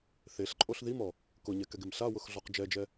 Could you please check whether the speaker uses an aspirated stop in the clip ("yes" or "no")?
no